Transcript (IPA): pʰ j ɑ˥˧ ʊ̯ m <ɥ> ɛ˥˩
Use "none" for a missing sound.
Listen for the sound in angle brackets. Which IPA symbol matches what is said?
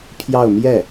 j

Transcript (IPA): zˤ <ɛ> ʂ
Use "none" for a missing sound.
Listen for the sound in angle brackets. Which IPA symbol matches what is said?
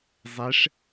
ɛ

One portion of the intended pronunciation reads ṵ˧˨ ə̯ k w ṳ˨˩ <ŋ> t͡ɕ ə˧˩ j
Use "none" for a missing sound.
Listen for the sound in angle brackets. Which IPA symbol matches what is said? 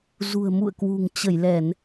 ŋ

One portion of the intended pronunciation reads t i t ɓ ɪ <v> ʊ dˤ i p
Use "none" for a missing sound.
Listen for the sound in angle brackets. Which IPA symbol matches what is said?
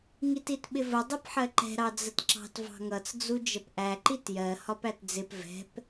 v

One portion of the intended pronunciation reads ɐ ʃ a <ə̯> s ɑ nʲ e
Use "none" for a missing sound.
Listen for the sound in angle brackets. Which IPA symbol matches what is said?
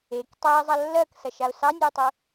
ʊ̯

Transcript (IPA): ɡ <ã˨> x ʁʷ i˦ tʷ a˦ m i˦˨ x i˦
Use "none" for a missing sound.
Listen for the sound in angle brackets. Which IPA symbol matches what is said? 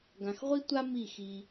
ã˨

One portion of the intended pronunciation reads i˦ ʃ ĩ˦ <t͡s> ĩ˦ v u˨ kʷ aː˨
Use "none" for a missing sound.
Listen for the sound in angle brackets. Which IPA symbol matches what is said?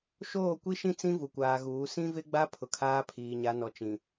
t͡s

